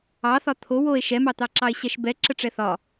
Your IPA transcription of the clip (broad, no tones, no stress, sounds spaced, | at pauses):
ɑ θ ɒ t̪ʰ o w o e̯ ʃ ɛ m ɑ t̪ ɑ ǁ ɑ e̯ ɕ ɛ ʃ b ɛ ǁ ə ʈ͡ʂ ɛ θ ɒ